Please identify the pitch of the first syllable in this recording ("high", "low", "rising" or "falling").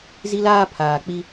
high